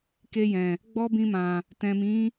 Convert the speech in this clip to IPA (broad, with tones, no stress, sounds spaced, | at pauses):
k e˧ j ɛ̃˨ | ɡ͡b ɔ˦ b ĩ˧ m ã˨ | t ɛ̃˨ m ĩ˨˦